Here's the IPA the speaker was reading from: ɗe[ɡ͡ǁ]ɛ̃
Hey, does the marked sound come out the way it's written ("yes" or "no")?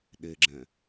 yes